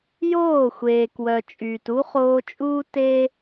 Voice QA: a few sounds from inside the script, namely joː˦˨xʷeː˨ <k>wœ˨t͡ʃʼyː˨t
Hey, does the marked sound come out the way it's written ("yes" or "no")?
yes